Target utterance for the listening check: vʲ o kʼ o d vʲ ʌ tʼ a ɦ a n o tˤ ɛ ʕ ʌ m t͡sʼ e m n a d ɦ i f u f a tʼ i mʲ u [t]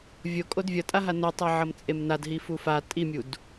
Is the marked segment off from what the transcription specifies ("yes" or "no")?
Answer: yes